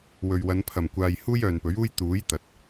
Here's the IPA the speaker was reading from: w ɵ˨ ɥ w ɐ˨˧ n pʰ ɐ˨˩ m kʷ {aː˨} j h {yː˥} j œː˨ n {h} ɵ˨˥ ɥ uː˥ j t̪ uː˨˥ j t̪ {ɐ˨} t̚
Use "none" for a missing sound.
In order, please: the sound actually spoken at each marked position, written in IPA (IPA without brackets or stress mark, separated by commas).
aː˨, uː˥, p, ɐ˨